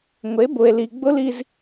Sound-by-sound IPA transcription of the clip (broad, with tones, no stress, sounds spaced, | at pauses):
ŋʷ e˩˥ b ʊ˩ e̯ l i˩ ɡ͡b ʊ˥ l i˧ z